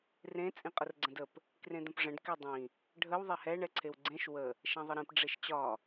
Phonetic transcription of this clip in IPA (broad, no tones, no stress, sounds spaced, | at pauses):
r ẽ t͡sʼ ĩ qʼ ə r ɡ͡ǀ ə̃ d ə p | k r ẽ d̪ ə̃ p ʐ ə̃ ɖ k e dˤ ĩ | ɖʱ ə w ðˤ e h ɛ ɳ ɛ ǀʰ e w ɡ͡ǀ ẽ ʃ w ə | ʃ ɛ̃ ðˤ ə ɾ ĩ p ɖ͡ʐ e ʃ t͡ɕ ɒ